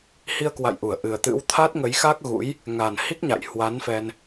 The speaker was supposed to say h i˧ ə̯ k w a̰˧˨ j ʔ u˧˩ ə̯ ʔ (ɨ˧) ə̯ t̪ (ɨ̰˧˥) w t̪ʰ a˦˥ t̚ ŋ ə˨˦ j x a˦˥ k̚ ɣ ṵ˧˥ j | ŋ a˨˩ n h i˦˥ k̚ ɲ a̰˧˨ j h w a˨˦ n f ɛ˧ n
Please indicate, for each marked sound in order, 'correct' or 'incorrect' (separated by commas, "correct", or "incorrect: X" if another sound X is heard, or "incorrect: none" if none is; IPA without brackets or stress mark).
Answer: incorrect: ɨ˨˩, correct